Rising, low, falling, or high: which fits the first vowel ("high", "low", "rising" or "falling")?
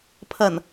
low